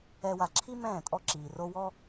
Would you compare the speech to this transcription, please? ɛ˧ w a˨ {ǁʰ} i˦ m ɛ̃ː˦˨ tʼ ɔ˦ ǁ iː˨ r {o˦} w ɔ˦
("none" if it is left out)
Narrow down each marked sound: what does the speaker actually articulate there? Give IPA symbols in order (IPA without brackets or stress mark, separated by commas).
ǁʰ, o˦